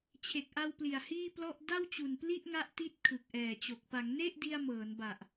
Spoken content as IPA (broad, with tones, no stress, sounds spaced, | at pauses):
t͡ɕʰ e˨˩ k̚ ʔ a˧ w p l i˨˩ a̯ h iː˥˩ p l ɔ˥˩ ʔ d a˥˩ w t͡ɕ u˨˩ n p l i˥˩ ʔ ŋ a˦˥ ʔ t i˥˩ t̚ kʰ ɯ˨˩ k̚ ʔ ɛː˨˩ t͡ɕ o˨˩ k̚ p a˩˦ ŋ n e˥˩ ʔ d i˧ a̯ m ɤː˩˦ n b a˨˩ ʔ